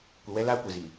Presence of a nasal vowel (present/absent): absent